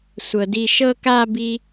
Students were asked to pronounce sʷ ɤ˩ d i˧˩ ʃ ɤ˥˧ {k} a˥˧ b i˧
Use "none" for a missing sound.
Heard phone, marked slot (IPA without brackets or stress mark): k